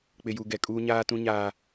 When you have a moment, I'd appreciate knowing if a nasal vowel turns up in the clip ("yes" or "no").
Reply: yes